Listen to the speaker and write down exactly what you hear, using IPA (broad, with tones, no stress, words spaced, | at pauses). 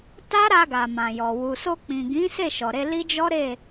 ta˦ɾa˧ɡa˨ mã˨jɔ˨ wu˨so˧k͡pĩ˨ ɡĩ˨˦ se˦˨ʃɔ˨ɾe˧ li˦d͡ʒɔ˦ɾe˦˨